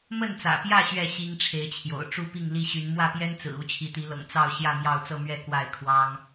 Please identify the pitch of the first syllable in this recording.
falling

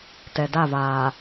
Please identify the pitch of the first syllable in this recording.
low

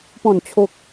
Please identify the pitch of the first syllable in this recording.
falling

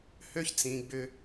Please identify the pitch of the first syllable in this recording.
high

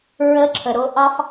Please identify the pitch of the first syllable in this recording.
rising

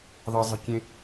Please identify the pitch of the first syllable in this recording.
high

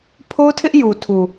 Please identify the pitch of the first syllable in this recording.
high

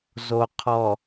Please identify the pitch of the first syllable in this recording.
low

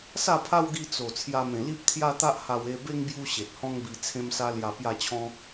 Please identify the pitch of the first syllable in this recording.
falling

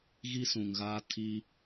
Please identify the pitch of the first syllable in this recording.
high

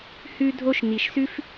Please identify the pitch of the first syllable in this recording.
high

